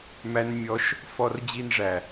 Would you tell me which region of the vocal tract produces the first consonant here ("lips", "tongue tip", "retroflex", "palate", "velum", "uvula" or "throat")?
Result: lips